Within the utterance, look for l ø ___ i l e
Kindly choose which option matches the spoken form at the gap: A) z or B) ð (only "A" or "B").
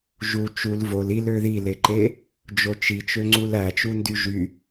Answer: B